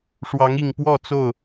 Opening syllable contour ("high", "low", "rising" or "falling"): rising